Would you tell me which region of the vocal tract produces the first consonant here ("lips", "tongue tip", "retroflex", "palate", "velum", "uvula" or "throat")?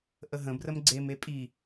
throat